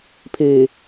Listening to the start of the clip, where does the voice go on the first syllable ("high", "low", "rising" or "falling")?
low